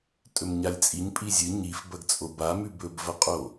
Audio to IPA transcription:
tʼ ɵ m ɲ a lʲ t͡sʼ i ɲ pʼ i zʲ ɨ ɲ i f b ɐ ɡ t͡sʼ o b a m ʉ b ɵ b v ɐ qʼ o

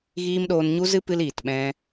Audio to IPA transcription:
ɣ iː˦ m ɗ oː˧ n ɲ u˦ z ɨ˦ p ɨ˦ l iː˨ t ɓ ɛ̃˦

